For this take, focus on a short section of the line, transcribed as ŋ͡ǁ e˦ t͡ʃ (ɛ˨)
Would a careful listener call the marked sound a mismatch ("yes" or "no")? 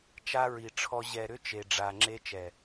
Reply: no